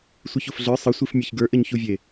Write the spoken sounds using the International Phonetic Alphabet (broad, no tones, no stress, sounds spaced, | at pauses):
sʷ ɨ ç o f ɮ ə˞ sˤ ɘ sʷ i f mʲ ɘ ç ɡ ə˞ ʔ ɘ ɲ ç u vʲ e